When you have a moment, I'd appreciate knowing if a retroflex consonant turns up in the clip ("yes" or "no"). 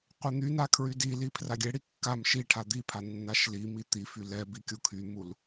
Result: yes